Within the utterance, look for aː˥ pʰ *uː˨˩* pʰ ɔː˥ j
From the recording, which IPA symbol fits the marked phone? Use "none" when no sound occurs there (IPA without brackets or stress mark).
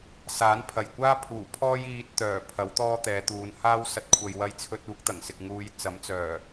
uː˨˩